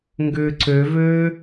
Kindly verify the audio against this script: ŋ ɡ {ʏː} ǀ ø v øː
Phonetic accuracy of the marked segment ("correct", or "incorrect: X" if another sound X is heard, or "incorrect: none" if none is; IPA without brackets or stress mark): correct